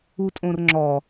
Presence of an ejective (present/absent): present